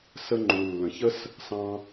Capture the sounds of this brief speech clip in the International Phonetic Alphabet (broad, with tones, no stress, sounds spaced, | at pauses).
s ə˥ ŋ͡ǃ u˩ lː ə̃˩ ç ə˥ s | s ɑ̃˥